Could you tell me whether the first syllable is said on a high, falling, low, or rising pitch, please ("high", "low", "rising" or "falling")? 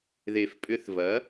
low